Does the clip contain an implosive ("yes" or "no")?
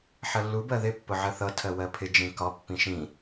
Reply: no